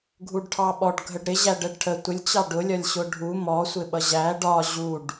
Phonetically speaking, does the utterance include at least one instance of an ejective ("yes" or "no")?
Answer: no